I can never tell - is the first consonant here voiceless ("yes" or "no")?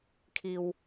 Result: yes